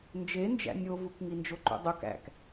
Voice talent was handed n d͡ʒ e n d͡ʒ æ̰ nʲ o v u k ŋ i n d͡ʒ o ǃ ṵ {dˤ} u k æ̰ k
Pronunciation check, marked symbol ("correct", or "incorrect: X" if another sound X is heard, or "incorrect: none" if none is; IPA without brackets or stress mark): correct